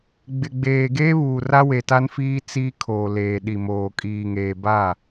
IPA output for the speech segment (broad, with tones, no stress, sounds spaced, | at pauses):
ɡ͡b ɪ˨ ɡ͡b eː˨ ɡ eː˦ β uː˨ r a˦ w e˨ t a˦ n f iː˦ t͡s iː˦ kʰ oː˨ l eː˨ ɗ i˨ m oː˨ kʼ iː˨ ŋ eː˨ b a˦˨